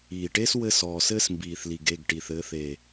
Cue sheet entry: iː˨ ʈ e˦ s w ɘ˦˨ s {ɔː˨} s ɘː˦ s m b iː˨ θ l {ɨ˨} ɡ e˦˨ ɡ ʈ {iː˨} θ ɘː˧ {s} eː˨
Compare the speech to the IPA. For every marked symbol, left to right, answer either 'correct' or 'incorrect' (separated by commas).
correct, incorrect, incorrect, incorrect